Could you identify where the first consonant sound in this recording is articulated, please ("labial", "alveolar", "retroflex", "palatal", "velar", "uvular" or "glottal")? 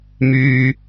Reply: labial